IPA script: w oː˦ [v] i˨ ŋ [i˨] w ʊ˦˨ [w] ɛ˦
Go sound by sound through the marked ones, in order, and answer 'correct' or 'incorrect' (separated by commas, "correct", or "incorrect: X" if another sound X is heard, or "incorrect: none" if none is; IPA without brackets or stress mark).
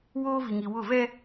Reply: correct, correct, incorrect: v